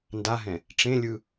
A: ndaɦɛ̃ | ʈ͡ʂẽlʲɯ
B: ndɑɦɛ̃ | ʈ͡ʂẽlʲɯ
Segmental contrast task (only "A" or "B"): A